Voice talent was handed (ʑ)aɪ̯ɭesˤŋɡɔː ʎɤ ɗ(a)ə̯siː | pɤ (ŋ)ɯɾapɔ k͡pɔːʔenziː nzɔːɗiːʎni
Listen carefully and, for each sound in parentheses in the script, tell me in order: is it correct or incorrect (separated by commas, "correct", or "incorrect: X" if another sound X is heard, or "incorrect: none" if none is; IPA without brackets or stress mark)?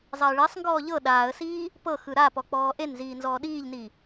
incorrect: zˤ, incorrect: aː, incorrect: x